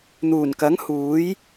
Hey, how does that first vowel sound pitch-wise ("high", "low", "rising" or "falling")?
low